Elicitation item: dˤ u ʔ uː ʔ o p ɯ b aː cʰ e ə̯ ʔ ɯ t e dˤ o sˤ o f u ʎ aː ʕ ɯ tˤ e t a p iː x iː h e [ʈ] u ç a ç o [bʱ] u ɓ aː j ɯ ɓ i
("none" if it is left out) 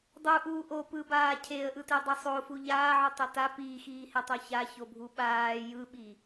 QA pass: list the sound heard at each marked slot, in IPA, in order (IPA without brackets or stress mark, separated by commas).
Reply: tˤ, bʱ